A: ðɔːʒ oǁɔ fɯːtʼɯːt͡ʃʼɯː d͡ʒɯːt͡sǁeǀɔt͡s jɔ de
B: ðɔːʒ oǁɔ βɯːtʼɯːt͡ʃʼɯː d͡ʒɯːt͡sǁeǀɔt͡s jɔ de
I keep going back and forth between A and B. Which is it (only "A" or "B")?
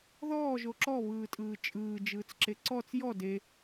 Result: B